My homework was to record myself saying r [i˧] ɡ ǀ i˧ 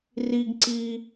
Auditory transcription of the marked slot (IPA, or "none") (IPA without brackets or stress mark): i˧